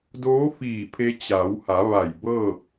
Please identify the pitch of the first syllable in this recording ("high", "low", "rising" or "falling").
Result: rising